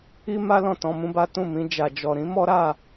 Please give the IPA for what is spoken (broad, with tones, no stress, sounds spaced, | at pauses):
i˦ m a˦ l ɔ̃˦˨ t ɔ̃˧ m ũ˦ b a˦ t ũ˦˨ m ĩ˧ d͡ʒ a˨ d͡ʒ ɔ˨ ɾ ĩ˨˦ m ɔ˦ ɾ a˦˨